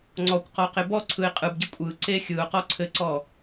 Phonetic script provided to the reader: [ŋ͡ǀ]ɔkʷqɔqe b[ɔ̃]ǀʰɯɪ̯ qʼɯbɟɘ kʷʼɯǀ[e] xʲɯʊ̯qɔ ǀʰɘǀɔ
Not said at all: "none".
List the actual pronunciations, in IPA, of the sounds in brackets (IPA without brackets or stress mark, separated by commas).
ŋ͡ǀ, ɔ, e